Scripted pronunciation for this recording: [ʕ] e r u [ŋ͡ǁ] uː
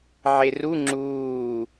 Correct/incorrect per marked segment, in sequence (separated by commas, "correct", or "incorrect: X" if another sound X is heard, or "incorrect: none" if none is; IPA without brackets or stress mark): correct, correct